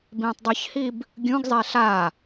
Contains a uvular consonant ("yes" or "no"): no